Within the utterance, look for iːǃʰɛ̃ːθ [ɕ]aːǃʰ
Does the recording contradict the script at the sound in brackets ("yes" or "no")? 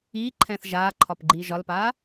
yes